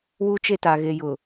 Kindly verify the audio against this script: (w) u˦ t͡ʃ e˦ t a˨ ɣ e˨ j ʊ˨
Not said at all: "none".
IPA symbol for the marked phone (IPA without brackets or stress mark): w